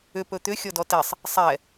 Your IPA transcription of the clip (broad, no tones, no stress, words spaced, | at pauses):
ʏp ɵt̪ʏ xʲɔdɔtɛsˤ | sˤɛ